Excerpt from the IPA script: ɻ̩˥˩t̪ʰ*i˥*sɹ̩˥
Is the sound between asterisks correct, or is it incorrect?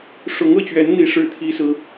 correct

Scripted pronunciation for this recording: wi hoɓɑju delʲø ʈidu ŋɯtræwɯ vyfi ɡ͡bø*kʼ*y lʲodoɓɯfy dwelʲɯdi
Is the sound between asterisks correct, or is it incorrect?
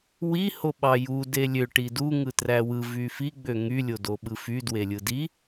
incorrect: ŋ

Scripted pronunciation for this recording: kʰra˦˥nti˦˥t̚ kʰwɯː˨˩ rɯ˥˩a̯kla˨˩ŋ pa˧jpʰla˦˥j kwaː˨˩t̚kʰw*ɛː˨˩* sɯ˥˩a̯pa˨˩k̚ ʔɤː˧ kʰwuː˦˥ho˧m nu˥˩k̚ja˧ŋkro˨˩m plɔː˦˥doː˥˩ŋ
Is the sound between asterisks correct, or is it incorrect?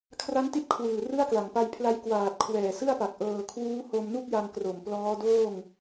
correct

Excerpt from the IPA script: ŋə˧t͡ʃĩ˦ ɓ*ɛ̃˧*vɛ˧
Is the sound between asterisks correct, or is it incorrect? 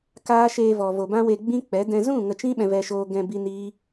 correct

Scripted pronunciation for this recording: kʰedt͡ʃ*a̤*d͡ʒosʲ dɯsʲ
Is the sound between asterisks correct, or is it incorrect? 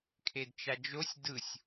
incorrect: a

